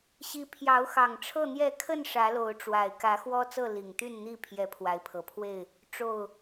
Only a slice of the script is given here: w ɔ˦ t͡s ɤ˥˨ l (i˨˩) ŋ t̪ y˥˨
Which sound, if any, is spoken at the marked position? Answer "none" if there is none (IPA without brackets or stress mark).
i˨˩